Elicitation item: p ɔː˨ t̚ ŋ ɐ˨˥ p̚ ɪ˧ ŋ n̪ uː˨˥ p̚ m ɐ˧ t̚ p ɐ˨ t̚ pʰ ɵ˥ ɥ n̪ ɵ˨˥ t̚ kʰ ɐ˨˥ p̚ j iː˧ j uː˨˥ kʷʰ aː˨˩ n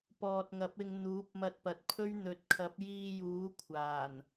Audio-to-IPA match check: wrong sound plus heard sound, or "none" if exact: none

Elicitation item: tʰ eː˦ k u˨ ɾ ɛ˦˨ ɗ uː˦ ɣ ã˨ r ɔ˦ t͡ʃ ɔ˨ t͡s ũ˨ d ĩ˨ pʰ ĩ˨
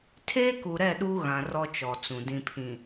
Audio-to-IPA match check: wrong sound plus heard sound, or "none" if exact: none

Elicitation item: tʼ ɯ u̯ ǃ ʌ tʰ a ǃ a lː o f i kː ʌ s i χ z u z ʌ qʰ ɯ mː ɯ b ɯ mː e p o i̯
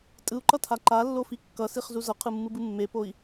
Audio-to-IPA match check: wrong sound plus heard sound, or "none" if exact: none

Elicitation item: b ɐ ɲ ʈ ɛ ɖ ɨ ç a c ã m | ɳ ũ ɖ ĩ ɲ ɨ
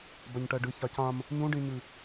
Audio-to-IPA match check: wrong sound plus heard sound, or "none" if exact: ɳ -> ɲ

